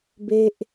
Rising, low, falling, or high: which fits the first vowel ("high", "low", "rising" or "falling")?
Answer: high